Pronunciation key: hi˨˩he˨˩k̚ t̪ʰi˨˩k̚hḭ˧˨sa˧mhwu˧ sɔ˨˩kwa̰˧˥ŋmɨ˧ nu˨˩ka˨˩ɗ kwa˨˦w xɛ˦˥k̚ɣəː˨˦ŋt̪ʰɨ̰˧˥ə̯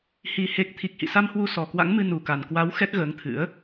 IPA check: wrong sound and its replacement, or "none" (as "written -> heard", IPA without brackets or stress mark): ɗ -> n